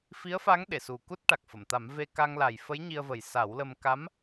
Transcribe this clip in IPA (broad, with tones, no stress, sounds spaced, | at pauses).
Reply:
f i˧˥ ə̯ f a˧˥ ŋ ɗ e˨˩˨ s u˨˩ k u˦˥ t̚ ʈ a˨˩ k̚ f ə˨˩˨ m t̪ a˨˩˦ m v e˧ k a˧ ŋ l a˨˩ j f ə˧˥ j ɲ i˧ ə̯ v ə˨˩ j s a˨˩˦ w l ə˧ m k a˧˥ m